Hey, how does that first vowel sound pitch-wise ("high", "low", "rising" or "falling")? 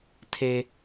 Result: high